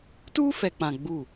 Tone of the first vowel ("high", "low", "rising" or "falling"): high